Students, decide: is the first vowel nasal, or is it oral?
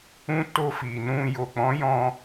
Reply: nasal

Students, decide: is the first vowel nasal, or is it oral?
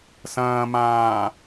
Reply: nasal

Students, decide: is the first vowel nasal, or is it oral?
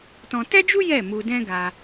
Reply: nasal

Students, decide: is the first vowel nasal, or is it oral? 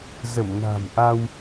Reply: oral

